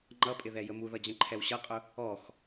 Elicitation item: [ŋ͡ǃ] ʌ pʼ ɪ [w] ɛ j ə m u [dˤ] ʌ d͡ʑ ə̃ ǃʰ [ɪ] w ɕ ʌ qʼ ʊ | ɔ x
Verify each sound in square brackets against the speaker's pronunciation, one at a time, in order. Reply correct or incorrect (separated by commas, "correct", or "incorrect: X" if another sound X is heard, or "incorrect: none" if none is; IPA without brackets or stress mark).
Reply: correct, incorrect: ð, incorrect: ð, incorrect: ɛ